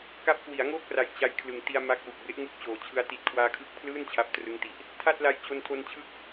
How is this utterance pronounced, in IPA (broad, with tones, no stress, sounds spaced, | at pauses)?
k a˦˥ p̚ k w i˩˦ a̯ ŋ oː˥˩ k̚ r a˨˩ j t͡ɕ a˦˥ j kʰ l ɯ˨˩ ŋ t i˧ a̯ m a˦˥ k̚ w u˨˩ k̚ b e˦˥ ʔ ŋ u˥˩ k̚ t͡ɕ oː˨˩ t͡ɕʰ ɯ˦˥ a̯ t i˨˩ t̚ kʰ w aː˧ kʰ ɯ˦˥ k̚ pʰ l ɯː˥˩ n t͡ɕʰ a˦˥ p̚ t r ɯ˦˥ ŋ t i˨˩ ʔ | tʰ a˥˩ t̚ l a˧ j t͡ɕ o˧ n tʰ o˧ n t͡ɕʰ ɯ˦˥ k̚